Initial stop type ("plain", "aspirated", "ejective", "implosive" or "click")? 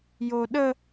implosive